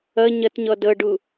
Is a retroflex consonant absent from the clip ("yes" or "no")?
no